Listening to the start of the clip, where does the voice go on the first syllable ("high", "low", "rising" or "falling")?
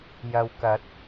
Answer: low